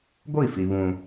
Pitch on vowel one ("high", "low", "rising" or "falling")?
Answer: falling